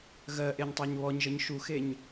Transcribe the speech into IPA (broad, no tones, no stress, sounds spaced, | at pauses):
ɣ ɜ ʔ e ɲ tˤ æ ɲ β ɔ ɲ ʒ ə ɲ ʃ u x e ɲ